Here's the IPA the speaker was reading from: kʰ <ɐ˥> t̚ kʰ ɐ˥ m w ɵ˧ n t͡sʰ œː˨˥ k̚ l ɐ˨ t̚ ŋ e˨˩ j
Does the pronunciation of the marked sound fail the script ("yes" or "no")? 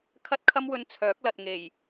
no